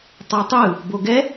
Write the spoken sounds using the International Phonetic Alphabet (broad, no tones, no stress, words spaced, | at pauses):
tˤotˤɯ | boɡɛ